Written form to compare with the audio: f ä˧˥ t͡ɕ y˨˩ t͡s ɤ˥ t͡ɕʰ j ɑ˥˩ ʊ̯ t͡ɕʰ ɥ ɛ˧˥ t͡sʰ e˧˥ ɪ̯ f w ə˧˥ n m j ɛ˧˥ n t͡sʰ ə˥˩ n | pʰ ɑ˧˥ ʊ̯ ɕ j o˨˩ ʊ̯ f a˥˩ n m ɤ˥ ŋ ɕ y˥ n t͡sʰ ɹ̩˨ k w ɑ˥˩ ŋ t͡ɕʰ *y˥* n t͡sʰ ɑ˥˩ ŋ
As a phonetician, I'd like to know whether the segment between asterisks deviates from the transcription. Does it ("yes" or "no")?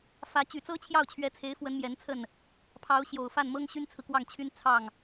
no